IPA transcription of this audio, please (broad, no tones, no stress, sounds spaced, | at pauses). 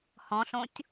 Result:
h ɔ̃ ɬ õ tʲ